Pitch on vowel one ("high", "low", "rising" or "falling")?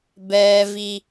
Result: high